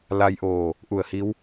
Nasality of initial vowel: oral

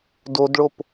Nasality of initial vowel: oral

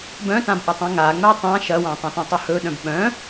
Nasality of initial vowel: nasal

